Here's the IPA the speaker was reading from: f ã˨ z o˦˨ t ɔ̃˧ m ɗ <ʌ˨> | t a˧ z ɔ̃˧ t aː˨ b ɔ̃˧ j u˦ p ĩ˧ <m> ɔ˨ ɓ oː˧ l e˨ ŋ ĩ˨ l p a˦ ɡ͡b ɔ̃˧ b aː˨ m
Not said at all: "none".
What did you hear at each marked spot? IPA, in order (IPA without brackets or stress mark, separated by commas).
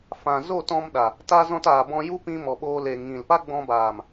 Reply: a˨, m